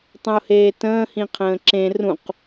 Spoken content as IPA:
tˤ ə̃ ʊ̯ h eː t ə̃ː h ĩ qʰ ə̃ː ǁ ẽ r ũ q

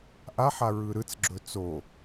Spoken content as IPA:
ʔ a ħ a ɹ ɯ ɾ ɯ t͡s ɡ͡ǁ ɵ t͡s o

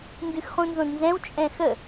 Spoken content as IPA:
n d ɨ x χ ũ n z õ d n z ɛ̃ w t͡ʃʼ ɛ̃ x ə

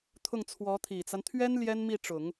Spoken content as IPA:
t̪ʰ ʊ˥˩ ŋ t͡sʰ w ɔ˧˥ t̪ʰ i˨˩ t͡s a˦ n t̪ʰ ɥ ɛ˥ n l j ɛ˥ n m i˥˩ ʈ͡ʂ ʊ˨˩˦ ŋ

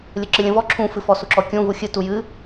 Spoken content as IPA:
lʲ ə ǁ ɨ lʲ ə̃ v ɔ ǁʰ ũ f ɨ f ɔ s u ǁ ɔ kʲ ũ v u xʲ ɨ t u j ɨ

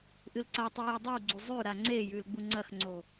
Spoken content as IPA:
ʔ ɨ l ǀ a tˤ ʉ j e dˤ i w ɡ͡ǀ u zˤ ʉ ɾ a ŋ͡ǀ e j ʉ l ɡ͡b u ŋ͡ǀ ɐ x ŋ͡ǀ o

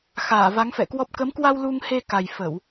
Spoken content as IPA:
x aː˧˩ v a˨˦ ŋ f ɛ̰˧˨ k w ɔ˦˥ p̚ k ə˨˦ m k w a˧ w l u˧ ŋ h e˧ k a˨˩ j f ə˧˩˨ w

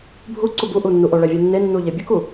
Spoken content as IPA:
bʱ u ǀ u b u ʔ u nː u ʔ o ɭ ɛ vʲ u nː e nː u ʎ e bʲ u k u

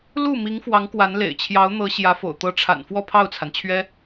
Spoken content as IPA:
l u˥˩ m i˧˥ ŋ f w ɑ˧˥ ŋ k w a˧˥ n l ḛ˨˩ ɪ̯ t͡ɕʰ j ɑ˧˥ ʊ̯ n̪ ɤ˧˥ ɕ j ä˧˥ f o̰˨˩ ʊ̯ t̪ ɤ˧˥ ʈ͡ʂʰ a̰˨˩ n f w ɔ˥˧ pʰ ɑ˥˩ ʊ̯ t͡sʰ a˩ n t͡ɕʰ ɥ ɛ˥

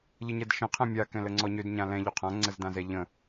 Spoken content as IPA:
ʎ ə ɲ ɛ d ʃ ə̃ qʰ ɛ̃ mʲ a k ɛ̃ l ə ŋ͡ǀ ɔ ɲ ø d ɲ ã l ɛ̃ ʎ o qʰ ã ŋ͡ǀ ə z d ã z ɛ ʎ ə̃

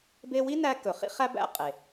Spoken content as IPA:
b e˥ w i˥ n æ˧ k ɵ˩ χ ḭ˥ χ æ˥ b æ̰˧ qʼ e˩

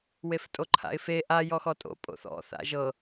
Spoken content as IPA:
w e f tʼ o ǃʰ a̰ ɪ̯ f e ʔ a j ɔ x ɔ tʼ o̰ pʼ o̰ θ ɔ̰ θ a̰ ʒ ɤ

